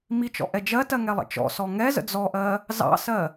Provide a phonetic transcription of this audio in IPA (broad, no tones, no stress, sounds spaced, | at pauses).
m i t͡ʃ ɔ̰ ʔ ɛ d͡ʒ ɜ t ɜ ŋ ɛ lˠ ə̰ t͡ʃ ɔ̰ s ɔ ŋ ɛ z ə̰ d͡z ɔ ʔ ɜ | z ɑ̰ s ɜ